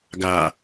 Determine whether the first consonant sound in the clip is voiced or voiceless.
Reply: voiced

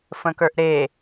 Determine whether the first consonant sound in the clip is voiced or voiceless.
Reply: voiceless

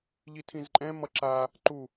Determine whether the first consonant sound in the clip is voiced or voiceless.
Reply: voiced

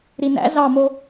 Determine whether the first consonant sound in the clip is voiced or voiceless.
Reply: voiced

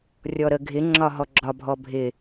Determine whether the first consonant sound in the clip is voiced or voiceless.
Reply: voiced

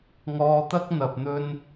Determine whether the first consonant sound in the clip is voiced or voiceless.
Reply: voiced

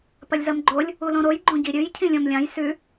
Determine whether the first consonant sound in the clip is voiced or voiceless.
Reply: voiceless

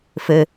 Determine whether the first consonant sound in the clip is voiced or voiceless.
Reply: voiceless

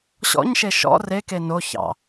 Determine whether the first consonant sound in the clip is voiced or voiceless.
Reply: voiceless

